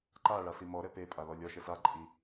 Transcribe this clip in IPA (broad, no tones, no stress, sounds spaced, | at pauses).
ǃ a ɭ a s i m ɔ ɾ ɛ p e pʼ a l ɔ lʲ ɔ ʃ ɛ s a ǃʼ i